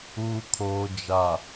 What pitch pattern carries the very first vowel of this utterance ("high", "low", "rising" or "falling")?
low